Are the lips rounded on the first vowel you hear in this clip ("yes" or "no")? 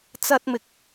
no